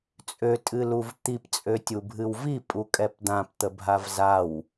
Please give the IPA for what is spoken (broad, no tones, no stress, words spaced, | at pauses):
t͡sʼø tʼɨluvt̪ip t͡sʼøtʲubʱɨwvi pʼukʼɛpd̪ãp t̪əbʱavzaw